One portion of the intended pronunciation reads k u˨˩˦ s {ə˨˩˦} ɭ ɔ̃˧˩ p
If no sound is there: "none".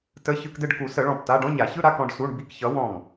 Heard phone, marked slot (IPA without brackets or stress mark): ə˨˩˦